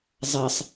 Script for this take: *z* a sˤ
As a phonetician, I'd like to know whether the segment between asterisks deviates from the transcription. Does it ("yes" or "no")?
yes